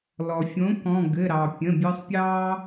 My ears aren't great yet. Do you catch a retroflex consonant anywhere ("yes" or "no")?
no